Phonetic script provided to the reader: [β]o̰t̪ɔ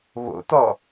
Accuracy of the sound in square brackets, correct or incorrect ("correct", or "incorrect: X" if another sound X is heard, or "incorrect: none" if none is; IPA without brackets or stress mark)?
correct